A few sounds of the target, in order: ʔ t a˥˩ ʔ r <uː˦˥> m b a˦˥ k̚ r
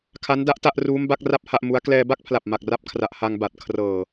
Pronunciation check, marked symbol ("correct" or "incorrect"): correct